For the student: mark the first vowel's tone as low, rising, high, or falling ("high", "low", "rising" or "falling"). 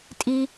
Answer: high